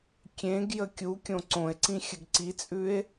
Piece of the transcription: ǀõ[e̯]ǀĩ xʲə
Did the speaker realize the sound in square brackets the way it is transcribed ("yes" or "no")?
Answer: yes